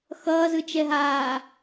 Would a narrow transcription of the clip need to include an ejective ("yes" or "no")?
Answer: no